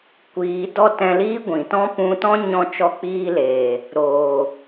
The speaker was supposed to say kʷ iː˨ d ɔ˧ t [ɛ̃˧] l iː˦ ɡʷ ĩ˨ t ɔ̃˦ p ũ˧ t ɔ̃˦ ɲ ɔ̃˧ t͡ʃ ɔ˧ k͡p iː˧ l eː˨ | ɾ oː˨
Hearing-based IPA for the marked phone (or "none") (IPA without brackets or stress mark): ɛ̃˧